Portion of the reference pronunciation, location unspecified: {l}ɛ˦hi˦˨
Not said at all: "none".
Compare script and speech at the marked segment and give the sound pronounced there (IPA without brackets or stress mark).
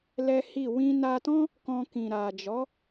l